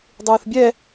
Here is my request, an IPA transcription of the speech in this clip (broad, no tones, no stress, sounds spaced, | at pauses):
dˤ ɯː θ bʲ ɛ